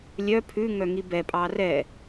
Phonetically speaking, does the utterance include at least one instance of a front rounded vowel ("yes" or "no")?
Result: yes